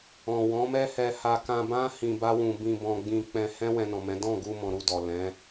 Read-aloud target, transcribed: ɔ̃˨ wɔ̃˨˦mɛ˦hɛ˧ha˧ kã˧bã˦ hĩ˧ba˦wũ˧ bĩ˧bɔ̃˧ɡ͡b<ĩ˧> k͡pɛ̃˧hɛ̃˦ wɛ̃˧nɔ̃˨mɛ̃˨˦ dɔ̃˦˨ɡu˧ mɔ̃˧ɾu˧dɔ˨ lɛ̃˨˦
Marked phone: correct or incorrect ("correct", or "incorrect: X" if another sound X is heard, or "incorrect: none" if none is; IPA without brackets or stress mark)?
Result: correct